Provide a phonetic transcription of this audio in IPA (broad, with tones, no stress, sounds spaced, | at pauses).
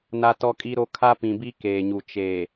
n a˦ t ɔ˦ kʼ i˦ ɾ o˦ kʰ a˦ p ĩ˨ b i˦ k eː˨ ɲ u˨ t͡ʃ eː˨